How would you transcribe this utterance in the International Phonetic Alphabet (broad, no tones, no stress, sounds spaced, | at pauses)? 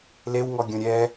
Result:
l e w ŋ ɔ ɡʲ õ ɾʲ ɛ